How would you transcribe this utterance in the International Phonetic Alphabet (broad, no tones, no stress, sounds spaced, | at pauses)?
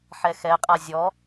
ħ ɛ x ɛ qʼ a zʲ ɔ